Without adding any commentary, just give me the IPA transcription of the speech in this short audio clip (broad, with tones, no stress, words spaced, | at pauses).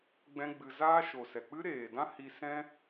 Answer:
ɡ͡bɛ̃˦ɡ͡bɨ˧ zaː˦ʃo˨sɛ˨ k͡pɨ˦ɾeː˨dã˦ hi˧sɛ̃˦